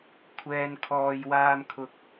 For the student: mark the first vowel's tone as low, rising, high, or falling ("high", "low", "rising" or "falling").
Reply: low